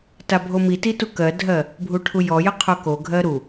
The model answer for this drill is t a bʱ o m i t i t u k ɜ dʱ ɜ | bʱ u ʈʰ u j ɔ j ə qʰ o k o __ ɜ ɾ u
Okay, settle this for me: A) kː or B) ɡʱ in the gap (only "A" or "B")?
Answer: B